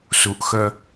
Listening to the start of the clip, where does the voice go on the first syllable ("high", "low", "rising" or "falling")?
low